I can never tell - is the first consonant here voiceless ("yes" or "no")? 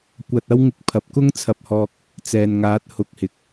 yes